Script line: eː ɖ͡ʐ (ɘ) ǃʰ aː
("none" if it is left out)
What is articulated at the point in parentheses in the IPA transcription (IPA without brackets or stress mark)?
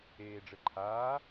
ɘ